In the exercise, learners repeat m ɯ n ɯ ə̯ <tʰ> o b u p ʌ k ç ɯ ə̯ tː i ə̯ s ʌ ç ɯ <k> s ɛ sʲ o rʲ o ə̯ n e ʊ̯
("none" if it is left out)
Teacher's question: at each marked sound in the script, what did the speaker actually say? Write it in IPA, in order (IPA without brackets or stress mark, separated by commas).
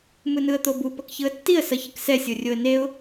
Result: t̪, k